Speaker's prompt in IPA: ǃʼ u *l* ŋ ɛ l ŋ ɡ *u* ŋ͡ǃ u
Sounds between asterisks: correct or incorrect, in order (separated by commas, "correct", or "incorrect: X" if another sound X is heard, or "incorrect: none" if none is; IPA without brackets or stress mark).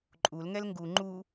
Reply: correct, correct